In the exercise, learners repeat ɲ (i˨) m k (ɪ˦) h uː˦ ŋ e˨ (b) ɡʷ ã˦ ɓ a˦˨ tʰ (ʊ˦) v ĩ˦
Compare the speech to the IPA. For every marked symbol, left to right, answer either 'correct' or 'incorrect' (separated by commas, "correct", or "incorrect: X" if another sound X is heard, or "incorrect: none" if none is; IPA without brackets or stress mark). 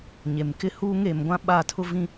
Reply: incorrect: e˨, correct, incorrect: m, correct